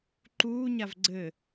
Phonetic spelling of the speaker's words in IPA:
ǃ uː ɲ a v ɡ͡ǀ ɘ

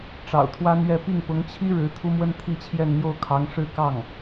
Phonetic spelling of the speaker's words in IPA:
ʈ͡ʂ ɑ̰˨˩ ʊ̯ t̪ʰ w a˥ n ɥ ɛ˥˧ p i˥˩ ŋ p ʊ˧˥ ŋ t͡ɕʰ i˥ ɻ ɻ̩˧˥ t̪ʰ u˥ m w ə˥ n t̪ʰ i˥˧ t͡ɕʰ j ɛ˥˧ n n̪ j o˥˩ ʊ̯ kʰ ɑ˧˥ ŋ ʂ ɻ̩˥ k ɑ˥˩ ŋ

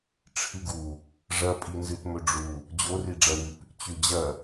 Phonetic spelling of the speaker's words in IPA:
ʈ͡ʂʰ ɨ ɡ u | ʐ ɐ pʼ i n z ɨ t m ɵ ɖ͡ʐ u | d͡ʑ o r i ɖ͡ʐ ɐ w ʉ p | t͡ɕ ʉ d͡ʑ ɐ

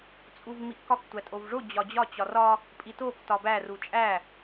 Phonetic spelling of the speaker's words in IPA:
t͡sʼ u v m i ʔ k ɒ k tʷ æ tʼ o v ʐ o d͡ʑ ɒ d͡ʑ ɒ t͡ɕ ɒ r ɒ | pʼ i t o k t ɒ b æ r u t͡ʃʼ æ

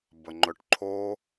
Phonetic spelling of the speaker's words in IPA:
b ə ŋ͡ǃ ɵ ʈ ǃʰ o

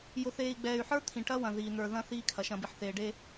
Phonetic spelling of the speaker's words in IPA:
j ʊ˨ θ eː˨ i̯ ɡ͡b ɛː˨ y̯ ħ ə˞˦ t̪ʰ ĩ˨ ʈ ɐ˦ w ɐ̃˨ ð iː˨ n̪ ə˞˨ ð ɐ̃˦ θ iː˦ kʰ ɐ˨ ʃ ɐ̃˨ b i˨ ħ θ eː˨ ɖ e˦

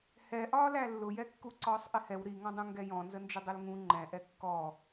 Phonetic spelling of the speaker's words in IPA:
h ɛ ʔ ɒː l æ lː ʊ j ɛ kː u ǀ ɒː sˤ ʔ ɪ h ɛ w ɾ i ŋ ɔ̃ dˤ ũ ŋ ɡ ɛ j ɔ̃ n z ə n d͡ʒ ʊ dˤ ʊ l ŋ ũ ŋ͡ǃ ɛ̃ ʔ ɛ kː ɔ

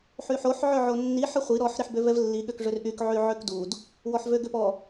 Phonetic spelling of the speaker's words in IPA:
ħ y ħ o ħ ʕ ø ʕ o nː i ħ ə χʷ i ɾ ɔ ħ ɾ i ħ b ø v ɛ v lː i ɠ ø k ʐ ø r ʔ y k ʕ y ʕ ø k d u d | w ɔ ħ v ø ɡ ø p ɔ

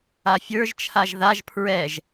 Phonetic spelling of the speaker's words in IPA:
a fʲ ə˞ ʒ t͡ʃʰ a ʒ ð a ʒ pʰ ɹ ɛ ʒ

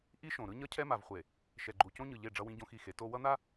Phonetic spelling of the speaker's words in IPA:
ʔ i˦ ʃ õ˨ ɾ ɯ˦ ɲ ʌ˦ cʰ ɛ˦ m a˨ v χʷ e˨ | ʃ ɛ˨ ɡ͡ǃ u˨ c õ˦ ɲ ɯ˨ ʎ e˦˨ ɖ͡ʐ ʌ˦ w ĩ˦ ɟ õ˦ x i˦˨ x e˨˦ t o˦ w ʌ˦ n̪ a˦

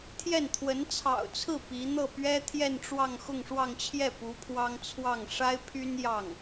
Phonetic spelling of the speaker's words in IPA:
t̪ʰ j ɛ˥˩ n t̪ʰ w ə˧˥ n t͡sʰ ɑ̰˨˩ ʊ̯ t͡sʰ ɹ̩˥˩ p i˧˥ n̪ ɤ˥˩ p ɥ ɛ˥ t̪ʰ j ɛ˥˧ n ʈ͡ʂ w ɑ˥˧ ŋ x ʊ˥˧ ŋ ʂ w ɑ˥˧ ŋ t͡ɕʰ j ɛ˥˩ p u˧˥ pʰ w ɑ˥ ŋ t͡sʰ w ɑ˥˩ ŋ ʂ a˥ ɪ̯ pʰ y˥ n j ɑ˥˩ ŋ

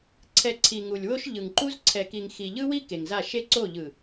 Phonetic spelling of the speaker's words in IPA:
ǀʰ ɛ˨ ǀʰ i˨ ŋ u˨ lʲ w o˦ ʃ ʎ ɯ˨ ŋ ǃ u˦ z ǀʰ ɛ˨ k i˨ ŋ x i˨ ʎ ɯ˦ w i˦ k e˨ ŋ z a˦˨ ʃ e˦ ǀ o˦˨ ʎ ɯ˨

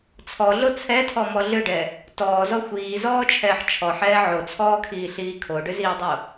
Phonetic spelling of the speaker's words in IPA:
t͡sʰ ɔ ɮ o t͡sʰ ɛ tʰ ɔ m ɔ ɮ ʏ ɖ ɛ | t ɔː z ɔ xʷ iː z ɔː t͡ʃʰ ɛː ħ t͡ʃʰ ɔ ħ ɛː ʕ o t͡sʰ ɔː kʰ iː ɬ iː kʰ o ɖ ʏ z iː dˤ o

